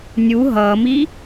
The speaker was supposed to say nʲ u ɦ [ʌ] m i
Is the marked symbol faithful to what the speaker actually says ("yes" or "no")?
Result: yes